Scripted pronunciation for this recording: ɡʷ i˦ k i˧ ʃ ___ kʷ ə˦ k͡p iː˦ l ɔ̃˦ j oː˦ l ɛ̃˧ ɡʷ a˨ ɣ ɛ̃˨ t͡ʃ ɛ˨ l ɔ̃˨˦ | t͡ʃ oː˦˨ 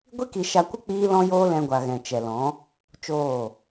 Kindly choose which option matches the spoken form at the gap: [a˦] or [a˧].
a˧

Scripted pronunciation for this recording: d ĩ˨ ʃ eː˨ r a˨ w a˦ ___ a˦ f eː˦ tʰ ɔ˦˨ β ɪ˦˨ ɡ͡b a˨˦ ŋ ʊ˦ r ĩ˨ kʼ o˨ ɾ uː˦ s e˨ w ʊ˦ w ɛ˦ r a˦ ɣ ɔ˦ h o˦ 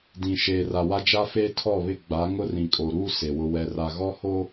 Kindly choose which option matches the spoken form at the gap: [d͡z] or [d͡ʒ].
d͡ʒ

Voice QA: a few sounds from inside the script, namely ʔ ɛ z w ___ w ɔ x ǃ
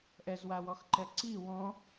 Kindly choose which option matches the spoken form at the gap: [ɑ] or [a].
a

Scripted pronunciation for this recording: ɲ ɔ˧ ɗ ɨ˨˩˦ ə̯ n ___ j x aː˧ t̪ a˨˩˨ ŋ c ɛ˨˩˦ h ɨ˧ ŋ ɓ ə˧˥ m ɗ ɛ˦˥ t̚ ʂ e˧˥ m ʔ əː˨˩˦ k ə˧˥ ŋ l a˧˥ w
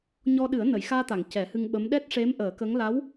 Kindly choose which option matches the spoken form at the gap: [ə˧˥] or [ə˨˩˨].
ə˨˩˨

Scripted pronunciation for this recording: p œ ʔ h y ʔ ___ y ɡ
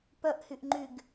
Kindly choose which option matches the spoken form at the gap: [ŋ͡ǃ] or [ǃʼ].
ŋ͡ǃ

